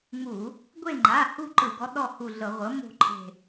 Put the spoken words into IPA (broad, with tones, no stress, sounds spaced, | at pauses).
ŋ͡m u˧˩˧ | ɡʷ e˦˨ ŋ͡ǃ a˩˧˩ h u˦˨ ǃ ɯ˧˩˧ ɡ ɔ˩˥ ɗ ɔ˦˨ h u˦˨ ɮ ɤ˧˩˧ ʁʷ ɤ˩˥ m o̤˦˨ ǃʰ e̤˦˨